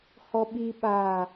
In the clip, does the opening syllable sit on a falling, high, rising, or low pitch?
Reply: high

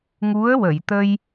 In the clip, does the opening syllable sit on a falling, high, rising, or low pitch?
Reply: rising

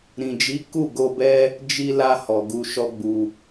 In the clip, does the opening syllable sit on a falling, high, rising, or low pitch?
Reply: low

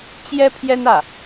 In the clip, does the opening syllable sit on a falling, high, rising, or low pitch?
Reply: high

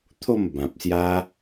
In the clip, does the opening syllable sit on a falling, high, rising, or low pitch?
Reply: falling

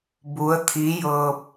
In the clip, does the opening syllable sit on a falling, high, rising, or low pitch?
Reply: rising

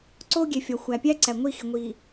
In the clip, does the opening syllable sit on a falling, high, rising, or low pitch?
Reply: high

